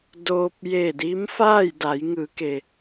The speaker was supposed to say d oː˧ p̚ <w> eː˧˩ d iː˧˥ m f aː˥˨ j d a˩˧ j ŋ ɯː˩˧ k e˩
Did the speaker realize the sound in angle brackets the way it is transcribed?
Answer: no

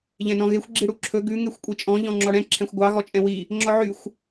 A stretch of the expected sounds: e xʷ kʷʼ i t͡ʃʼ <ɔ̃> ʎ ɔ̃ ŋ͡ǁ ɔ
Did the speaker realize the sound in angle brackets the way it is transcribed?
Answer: yes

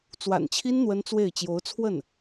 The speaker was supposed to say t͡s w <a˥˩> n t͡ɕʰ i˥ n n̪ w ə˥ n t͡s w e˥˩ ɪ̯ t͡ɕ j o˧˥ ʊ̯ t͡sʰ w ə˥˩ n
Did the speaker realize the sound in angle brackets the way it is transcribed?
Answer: no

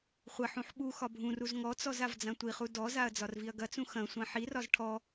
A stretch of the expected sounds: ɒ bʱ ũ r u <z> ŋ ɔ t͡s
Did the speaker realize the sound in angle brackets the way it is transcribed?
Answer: yes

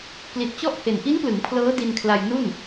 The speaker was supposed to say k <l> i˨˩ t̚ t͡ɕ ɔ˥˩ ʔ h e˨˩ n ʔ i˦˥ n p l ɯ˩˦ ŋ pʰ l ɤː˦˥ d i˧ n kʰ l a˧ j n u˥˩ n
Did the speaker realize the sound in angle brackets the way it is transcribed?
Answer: yes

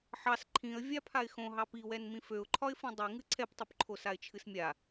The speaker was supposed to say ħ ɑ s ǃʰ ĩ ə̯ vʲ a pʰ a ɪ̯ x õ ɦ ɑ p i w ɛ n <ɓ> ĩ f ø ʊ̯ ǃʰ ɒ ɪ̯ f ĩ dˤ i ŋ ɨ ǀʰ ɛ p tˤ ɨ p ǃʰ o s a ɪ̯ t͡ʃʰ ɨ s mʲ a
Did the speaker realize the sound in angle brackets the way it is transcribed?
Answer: no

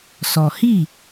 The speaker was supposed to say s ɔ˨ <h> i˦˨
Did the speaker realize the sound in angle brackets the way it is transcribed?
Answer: yes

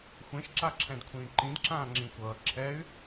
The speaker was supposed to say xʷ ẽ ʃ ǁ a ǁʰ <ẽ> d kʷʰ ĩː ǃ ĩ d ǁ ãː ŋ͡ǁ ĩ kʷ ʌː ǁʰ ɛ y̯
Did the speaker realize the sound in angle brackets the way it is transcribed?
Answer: no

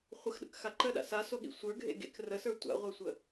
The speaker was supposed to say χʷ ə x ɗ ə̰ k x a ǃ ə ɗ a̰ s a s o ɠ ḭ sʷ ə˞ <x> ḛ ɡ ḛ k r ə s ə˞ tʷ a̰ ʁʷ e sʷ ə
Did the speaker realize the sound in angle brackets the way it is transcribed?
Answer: no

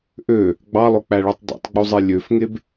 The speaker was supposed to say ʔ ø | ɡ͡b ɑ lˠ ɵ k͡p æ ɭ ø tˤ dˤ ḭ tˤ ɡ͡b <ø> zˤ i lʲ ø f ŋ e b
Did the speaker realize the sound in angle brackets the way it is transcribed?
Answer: no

